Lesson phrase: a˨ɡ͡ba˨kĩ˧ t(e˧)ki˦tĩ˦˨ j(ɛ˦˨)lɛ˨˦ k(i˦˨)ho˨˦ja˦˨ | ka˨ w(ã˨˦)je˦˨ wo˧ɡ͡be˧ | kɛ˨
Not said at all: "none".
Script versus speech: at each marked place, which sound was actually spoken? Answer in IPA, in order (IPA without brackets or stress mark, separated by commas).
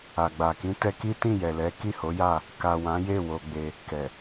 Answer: ɛ˧, ɛ˨, i˦˨, ã˨˦